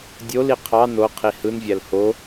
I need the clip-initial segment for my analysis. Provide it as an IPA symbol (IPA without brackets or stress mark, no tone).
dʲ